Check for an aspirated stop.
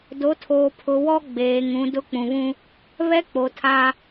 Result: present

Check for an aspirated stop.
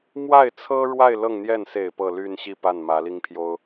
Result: present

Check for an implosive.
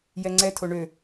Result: absent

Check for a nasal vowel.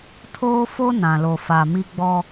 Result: present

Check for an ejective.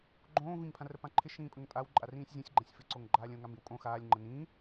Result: present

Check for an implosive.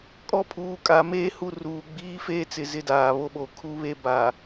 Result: present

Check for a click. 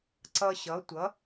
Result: present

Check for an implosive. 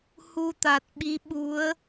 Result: present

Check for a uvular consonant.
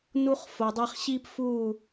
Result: present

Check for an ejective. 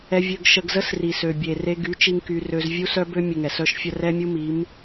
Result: absent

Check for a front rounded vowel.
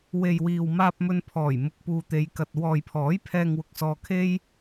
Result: absent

